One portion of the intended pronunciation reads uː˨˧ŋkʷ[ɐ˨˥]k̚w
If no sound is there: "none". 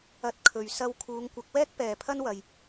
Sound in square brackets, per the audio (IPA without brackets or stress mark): ɐ˨˥